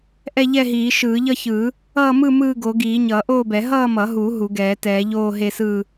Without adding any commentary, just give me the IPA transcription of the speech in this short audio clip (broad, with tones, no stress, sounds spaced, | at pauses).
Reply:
ʔ ɛ˥˧ ʎ ɛ˥˧ ɦ iː˨˩˦ ʃ ɯː˨˩˦ ʎ ʌ˥˧ ç ɯ˨˩˦ | ʌː˥˧ m ɯ˥˧ m ɯː˥˧ ɡ o˨˩˦ ɡ iː˨˩˦ ɲ ʌː˨˩˦ ʔ oː˥˧ b ɛ˨˩˦ ɦ ʌː˥˧ m ʌ˨˩˦ ɦ u˨˩˦ ɦ u˨˩˦ ɡ ɛː˨˩˦ t ɛː˨˩˦ ʎ oː˥˧ ɦ e˥˧ s ɯ˥˧